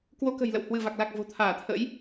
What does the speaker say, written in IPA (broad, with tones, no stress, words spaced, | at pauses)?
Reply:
kwo˧kə̤˨˩jlə̰˧˨w hwɨ˧˩va˨˩k̚la˨˩k̚ vo̤˨˩t̪ʰaː˧˩t̪ʰə̰˧˥j